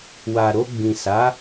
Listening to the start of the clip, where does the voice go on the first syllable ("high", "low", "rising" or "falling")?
low